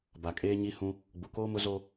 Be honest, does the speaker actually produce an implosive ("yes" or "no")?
no